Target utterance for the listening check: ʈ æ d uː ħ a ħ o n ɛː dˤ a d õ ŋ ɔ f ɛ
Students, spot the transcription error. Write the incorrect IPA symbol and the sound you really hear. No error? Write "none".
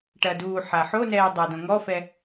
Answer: æ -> ɐ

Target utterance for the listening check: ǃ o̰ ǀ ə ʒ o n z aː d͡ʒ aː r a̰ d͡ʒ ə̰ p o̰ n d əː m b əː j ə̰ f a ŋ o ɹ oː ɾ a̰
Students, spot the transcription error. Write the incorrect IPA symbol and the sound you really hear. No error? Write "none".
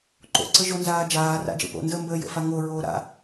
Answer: none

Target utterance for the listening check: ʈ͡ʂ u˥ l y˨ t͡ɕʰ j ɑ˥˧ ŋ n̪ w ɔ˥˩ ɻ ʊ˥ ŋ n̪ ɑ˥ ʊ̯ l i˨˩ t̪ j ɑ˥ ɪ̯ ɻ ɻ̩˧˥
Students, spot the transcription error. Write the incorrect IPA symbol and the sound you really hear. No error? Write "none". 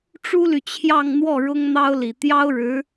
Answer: ɪ̯ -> ʊ̯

